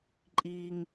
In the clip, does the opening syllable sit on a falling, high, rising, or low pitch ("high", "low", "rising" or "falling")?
high